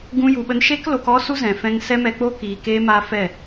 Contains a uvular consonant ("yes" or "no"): no